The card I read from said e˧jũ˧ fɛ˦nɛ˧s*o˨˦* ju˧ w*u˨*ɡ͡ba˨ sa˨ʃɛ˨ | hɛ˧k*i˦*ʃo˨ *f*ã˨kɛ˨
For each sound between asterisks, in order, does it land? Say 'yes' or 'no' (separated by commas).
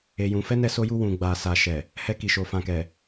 no, no, no, yes